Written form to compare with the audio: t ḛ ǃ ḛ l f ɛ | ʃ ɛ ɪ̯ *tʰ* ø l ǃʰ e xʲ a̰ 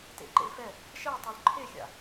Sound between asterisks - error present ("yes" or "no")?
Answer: yes